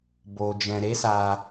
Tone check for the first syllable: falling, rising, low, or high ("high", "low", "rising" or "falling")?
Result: low